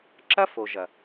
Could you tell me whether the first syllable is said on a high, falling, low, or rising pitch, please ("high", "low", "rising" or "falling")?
high